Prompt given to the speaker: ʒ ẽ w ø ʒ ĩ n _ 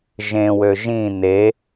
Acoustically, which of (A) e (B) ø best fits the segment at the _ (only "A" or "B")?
A